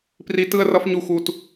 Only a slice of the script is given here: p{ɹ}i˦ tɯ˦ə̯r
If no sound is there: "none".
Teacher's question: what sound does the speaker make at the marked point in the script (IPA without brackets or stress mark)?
r